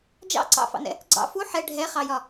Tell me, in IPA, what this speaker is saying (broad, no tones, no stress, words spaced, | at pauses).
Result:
d͡ʒɑ̰ ǀɑ̰fɑ̰nɛ̰ | ɡ͡ǀɑ̰ fu ħɛ ɖʱɛχɑjɒ